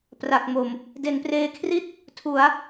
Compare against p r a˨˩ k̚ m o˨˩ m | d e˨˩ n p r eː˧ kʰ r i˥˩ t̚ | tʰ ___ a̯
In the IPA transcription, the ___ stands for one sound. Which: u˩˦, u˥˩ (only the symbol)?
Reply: u˩˦